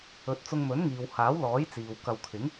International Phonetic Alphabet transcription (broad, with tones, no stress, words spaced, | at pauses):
ɵ˨˥t̚t͡sʊ˧ŋ mɵ˨˥nŋiː˨whaː˨˥wlɔː˨˥j t͡siː˨w kɐ˨wkʰɪ˨˥ŋ